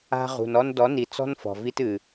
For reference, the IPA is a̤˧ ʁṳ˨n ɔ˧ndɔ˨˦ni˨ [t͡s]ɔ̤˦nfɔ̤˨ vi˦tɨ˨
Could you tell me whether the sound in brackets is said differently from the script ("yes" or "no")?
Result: no